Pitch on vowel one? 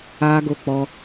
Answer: high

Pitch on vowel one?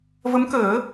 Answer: rising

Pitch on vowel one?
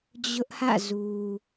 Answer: high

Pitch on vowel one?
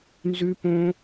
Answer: high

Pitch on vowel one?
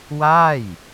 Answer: falling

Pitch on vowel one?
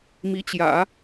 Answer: rising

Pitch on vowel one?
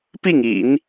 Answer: falling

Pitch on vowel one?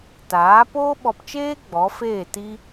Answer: rising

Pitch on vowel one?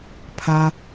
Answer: high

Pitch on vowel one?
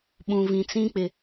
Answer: low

